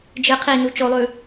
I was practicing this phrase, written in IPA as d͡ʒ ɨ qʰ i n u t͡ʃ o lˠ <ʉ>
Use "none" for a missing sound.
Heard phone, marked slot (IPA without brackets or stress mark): ʉ